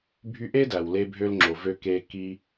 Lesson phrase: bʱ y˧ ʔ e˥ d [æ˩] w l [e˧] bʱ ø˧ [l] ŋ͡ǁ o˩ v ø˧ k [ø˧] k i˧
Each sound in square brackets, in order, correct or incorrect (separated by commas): correct, correct, correct, incorrect